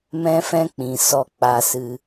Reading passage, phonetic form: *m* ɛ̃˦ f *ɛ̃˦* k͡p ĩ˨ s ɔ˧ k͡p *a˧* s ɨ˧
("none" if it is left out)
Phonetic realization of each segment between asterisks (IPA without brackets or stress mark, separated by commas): m, ɛ̃˦, a˧